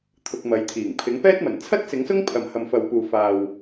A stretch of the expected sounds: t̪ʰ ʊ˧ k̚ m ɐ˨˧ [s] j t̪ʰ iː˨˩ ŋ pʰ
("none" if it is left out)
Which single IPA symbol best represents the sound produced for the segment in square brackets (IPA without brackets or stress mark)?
none